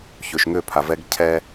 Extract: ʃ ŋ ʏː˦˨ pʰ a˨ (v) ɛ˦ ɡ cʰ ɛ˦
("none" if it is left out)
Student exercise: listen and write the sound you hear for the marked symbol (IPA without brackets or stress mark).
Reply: v